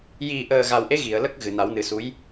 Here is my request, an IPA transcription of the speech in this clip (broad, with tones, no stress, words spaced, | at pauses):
ji˨˩ʔəː˨˩ ɣa˨˩wʔe˧˥ ɣi˨˩˨ə̯lə˦˥k̚ ɣɨ˨˩na˨˩˦wnɨ˨˩˦su˧˥j